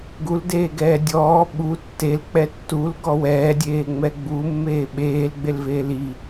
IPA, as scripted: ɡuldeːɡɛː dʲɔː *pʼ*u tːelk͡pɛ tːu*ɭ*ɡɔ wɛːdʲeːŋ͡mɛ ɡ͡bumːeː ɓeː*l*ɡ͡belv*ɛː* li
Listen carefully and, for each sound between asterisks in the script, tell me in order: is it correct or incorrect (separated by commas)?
incorrect, incorrect, correct, incorrect